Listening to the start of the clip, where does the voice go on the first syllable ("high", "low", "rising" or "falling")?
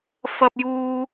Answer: high